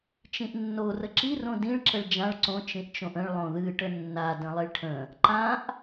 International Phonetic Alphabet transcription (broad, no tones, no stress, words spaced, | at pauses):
t͡ʃĩʔnːo rəǁi rõdĩɭ ǁəɭd͡ʒãɭ ǀõ t͡ʃĩʔt͡ʃõʔə̃ɭ lˠõðɨ ʈənːa də̃lˠiɭʈʰə̃ | ǃãʔ